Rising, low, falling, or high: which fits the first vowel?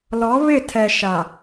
rising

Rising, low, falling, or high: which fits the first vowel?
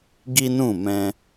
high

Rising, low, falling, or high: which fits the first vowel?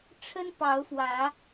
high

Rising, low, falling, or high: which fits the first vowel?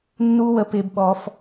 high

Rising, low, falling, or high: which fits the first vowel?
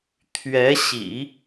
rising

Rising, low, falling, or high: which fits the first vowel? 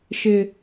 low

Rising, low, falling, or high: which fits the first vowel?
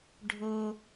low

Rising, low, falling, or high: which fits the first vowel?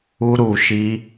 high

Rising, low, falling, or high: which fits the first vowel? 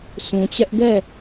low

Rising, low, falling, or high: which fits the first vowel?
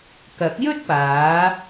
rising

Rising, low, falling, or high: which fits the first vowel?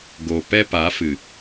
low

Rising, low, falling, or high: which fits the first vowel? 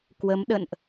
rising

